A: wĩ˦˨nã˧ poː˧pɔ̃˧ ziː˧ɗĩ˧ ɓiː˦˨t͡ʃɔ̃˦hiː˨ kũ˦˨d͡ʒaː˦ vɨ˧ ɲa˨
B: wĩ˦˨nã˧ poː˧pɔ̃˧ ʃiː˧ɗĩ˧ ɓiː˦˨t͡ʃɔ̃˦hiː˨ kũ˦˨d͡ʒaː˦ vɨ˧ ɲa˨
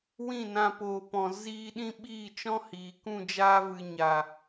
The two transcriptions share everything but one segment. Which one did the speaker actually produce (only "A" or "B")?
A